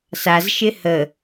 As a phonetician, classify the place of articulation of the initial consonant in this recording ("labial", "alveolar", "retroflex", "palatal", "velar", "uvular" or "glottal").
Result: alveolar